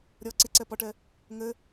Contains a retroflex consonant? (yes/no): yes